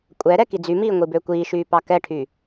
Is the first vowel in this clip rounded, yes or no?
no